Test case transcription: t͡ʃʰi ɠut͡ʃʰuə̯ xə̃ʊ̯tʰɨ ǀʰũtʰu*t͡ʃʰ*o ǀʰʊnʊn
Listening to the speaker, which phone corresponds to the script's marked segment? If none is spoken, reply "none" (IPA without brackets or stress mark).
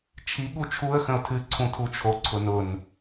t͡ʃʰ